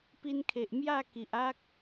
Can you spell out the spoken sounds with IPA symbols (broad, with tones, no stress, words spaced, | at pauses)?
pi˧nkʰe˨ʔ mja˥˧ ki˨ʔ a˦k̚